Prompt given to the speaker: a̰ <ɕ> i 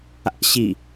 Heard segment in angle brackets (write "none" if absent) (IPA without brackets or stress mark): ɕ